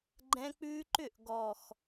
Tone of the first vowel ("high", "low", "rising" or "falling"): high